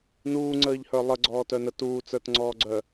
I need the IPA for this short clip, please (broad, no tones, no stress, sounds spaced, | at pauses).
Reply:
n uː ŋ͡ǀ əː ʎ h ə˞ lˠ ə ɡ͡ǀ ɔː t œ n ə t uː t͡s ə˞ t ŋ͡ǀ ɔː ɡ͡ǀ œ